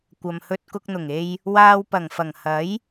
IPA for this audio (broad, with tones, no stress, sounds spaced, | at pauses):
kʷ ɐ˨ m h ɵ˧ t̚ k ʊ˧ k̚ n̪ ʊ˨˩ ŋ e˧ j | w aː˧ w p ɐ˨˩ ŋ f ɐ˨˩ ŋ h ɐ˨˥ j